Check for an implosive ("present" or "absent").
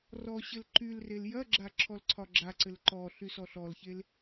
absent